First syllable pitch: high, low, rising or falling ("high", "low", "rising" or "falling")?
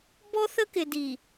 high